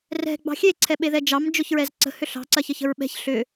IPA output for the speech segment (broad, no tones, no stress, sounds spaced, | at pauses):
r ɛ̤ ɡ͡b ɑ̤ xʲ e ǀʰ ɛ ɓ e ð ɛ d͡ʒ ɑ m d͡ʒ ʊ ç ɹ ɛ z ǀ ə̤ h ʏ ɬ ɑ̤ ǀ ɐ ç ə ç ə̤ ɹ ɓ ɛ̤ ç ɬ ʏ